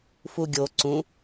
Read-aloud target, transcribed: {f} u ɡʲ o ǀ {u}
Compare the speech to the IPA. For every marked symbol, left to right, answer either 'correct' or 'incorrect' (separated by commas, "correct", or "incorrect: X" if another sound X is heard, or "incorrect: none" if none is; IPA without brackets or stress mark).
correct, incorrect: ũ